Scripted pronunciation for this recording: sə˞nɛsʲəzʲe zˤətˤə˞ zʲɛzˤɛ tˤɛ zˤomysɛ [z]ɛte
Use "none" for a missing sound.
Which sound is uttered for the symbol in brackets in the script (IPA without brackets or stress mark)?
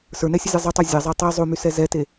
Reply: z